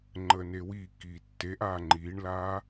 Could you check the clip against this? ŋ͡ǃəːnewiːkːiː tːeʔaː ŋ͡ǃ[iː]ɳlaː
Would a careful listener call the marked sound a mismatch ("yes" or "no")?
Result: no